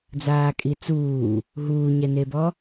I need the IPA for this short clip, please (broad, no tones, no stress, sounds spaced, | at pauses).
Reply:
d͡z aː kʼ i t͡s uː | ɦ uː ɲ ɛ n e b ɔ